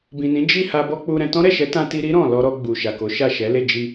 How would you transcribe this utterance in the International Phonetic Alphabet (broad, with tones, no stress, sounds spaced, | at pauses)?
b ĩ˨ n ĩ˨˦ d͡ʒ i˦˨ h a˧ b ɔ˦ k͡p u˧ ɾ ɛ̃˧ t ɔ̃˦ ɾ ɛ˦˨ ʃ ɛ˨˦ t ã˧ t i˧ ɾ i˦ ɾ ɔ̃˦˨ l ɔ˧ ɾ ɔ˧ ɡ͡b u˨ ʃ a˨ k o˨˦ ʃ a˦˨ ʃ ɛ˨˦ l e˦˨ d͡ʒ i˧